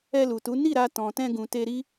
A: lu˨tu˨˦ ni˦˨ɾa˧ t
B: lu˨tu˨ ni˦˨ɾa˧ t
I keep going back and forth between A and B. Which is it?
A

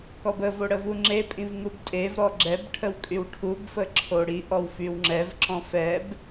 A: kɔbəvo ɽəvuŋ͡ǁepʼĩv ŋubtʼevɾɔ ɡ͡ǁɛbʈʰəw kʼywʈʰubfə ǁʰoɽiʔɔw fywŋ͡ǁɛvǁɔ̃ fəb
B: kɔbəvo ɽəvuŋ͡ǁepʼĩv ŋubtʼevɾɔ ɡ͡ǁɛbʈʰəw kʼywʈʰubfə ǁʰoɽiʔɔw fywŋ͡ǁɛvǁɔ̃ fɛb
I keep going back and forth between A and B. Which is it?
B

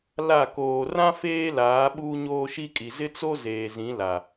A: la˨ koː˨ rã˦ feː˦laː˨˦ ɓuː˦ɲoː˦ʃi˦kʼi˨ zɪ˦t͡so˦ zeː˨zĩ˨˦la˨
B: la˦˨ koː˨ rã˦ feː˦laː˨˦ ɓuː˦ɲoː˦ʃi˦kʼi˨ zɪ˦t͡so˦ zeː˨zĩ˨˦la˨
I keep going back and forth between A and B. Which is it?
B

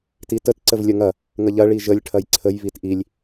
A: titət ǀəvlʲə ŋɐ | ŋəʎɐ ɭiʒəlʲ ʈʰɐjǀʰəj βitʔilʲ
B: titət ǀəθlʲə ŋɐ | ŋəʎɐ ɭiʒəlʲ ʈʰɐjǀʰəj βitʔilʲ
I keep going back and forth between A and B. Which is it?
A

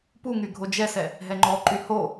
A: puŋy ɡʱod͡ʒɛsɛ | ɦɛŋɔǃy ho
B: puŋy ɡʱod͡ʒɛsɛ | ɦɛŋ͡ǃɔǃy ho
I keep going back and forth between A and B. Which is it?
B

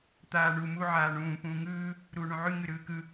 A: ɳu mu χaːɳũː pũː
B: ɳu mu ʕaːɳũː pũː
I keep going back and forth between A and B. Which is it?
B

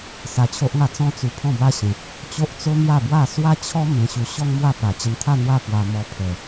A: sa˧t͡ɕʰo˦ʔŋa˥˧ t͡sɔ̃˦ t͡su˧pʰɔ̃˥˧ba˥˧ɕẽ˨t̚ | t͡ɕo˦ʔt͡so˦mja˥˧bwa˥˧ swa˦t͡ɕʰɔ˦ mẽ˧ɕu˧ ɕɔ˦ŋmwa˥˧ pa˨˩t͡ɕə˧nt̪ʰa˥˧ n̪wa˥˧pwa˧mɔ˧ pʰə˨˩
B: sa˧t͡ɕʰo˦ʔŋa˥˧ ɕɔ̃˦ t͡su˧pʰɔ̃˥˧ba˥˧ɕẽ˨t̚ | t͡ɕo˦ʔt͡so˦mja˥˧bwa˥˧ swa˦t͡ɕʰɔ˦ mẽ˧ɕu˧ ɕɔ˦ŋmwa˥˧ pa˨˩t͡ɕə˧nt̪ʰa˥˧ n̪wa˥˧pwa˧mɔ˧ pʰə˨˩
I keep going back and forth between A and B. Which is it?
A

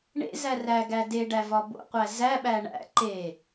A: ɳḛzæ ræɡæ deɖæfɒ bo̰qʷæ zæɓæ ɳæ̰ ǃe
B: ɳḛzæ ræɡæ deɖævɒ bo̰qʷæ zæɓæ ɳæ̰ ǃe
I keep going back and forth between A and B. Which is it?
B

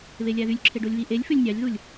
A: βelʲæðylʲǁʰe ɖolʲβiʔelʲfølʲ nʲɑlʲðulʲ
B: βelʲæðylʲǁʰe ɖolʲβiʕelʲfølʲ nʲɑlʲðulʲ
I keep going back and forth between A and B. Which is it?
A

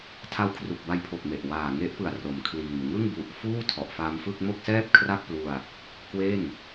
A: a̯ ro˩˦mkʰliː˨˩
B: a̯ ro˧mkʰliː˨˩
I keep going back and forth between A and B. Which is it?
A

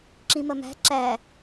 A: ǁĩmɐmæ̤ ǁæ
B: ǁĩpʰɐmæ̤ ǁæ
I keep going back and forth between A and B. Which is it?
A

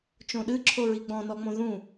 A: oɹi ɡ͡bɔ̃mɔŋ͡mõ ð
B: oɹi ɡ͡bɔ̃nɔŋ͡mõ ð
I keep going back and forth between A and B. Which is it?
B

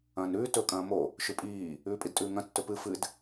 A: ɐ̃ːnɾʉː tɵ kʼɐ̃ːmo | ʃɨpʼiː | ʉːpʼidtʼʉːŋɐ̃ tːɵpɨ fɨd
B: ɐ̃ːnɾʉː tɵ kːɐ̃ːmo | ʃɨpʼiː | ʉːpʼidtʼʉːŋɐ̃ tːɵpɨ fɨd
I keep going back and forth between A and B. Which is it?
A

